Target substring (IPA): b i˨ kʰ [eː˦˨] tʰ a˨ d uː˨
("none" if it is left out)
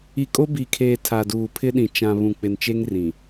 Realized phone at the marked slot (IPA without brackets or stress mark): eː˨